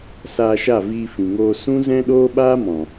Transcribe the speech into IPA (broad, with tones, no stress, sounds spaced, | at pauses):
s aː˧ ʃ a˦˨ v iː˧ f ĩ˨ ŋ oː˧ s ũ˦ z ɛ̃˦ ɗ oː˦ ɓ aː˦ m ɔ̃˨